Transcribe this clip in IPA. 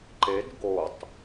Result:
ǃ e d ɡ o tˤ

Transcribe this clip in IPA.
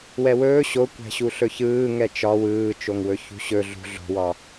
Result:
w ɛ w ɵː ɕ o kʷ æ̤ ɕ u ɬ ɵ ç ɯː ŋ ɛ t͡ʃ ɒ w ɯː t͡ʃ o ŋ w ɵ ç ṳ ɕ ɵ ɮ ṳ ɮ o̤ w ɒ

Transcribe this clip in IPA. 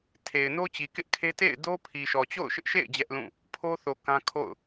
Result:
tʰ e˨ ɪ̯ n o˦ t͡ɕ i˨ k ɪ˦ ʔ kʰ e˦ t ḛ˦˨ ɪ̯ d o˦ pʰ i˨ ʃ ɔ˨ t͡ɕ o̰˦˨ ʊ̯ ʃ ɪ˦ ʔ ʃ ḛ˦˨ ɪ̯ d͡ʑ ɛ˦ ʔ l ũ˦˨ | pʰ o˦ θ o˨ k ã˦ kʰ o̰˦˨ ʊ̯

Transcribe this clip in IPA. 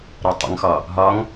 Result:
ɾ ɔ tˤ ə̰ ŋ x ɒ | ɦ ɒ ŋ

